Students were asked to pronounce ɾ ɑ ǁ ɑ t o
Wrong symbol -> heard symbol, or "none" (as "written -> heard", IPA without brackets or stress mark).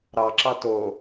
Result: none